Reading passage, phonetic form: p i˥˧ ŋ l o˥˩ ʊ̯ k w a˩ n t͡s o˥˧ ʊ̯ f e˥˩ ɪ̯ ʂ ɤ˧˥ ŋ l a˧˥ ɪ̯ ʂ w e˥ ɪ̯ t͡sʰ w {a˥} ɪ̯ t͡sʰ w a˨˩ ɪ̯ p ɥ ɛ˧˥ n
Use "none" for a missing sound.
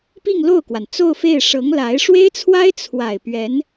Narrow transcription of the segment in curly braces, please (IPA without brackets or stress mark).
a˥